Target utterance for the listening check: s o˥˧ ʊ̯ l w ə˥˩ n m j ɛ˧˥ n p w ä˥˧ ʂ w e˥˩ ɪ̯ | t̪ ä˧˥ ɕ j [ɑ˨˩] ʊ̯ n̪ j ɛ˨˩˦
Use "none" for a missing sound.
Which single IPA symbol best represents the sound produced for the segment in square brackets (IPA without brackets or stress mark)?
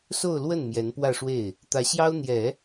ɑ˥